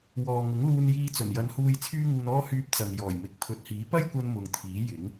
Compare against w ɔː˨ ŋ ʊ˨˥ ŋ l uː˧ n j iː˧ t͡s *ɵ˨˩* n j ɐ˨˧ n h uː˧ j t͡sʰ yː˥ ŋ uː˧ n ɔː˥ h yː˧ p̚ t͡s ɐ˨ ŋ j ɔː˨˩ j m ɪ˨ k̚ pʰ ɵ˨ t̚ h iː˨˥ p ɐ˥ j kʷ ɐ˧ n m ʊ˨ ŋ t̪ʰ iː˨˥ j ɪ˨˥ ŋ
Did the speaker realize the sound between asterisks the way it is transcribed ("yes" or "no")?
yes